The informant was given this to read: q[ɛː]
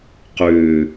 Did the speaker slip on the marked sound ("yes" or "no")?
yes